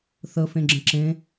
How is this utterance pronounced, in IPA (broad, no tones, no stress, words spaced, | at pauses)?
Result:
θə fẽɡ͡ǁə̃ǁẽ